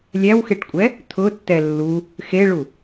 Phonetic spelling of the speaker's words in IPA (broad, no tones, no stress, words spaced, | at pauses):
lʲæwxeʈkʷʼɛ | t̪ʰʊtːɛ lːu | xeɭu